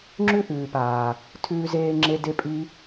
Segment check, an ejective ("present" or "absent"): present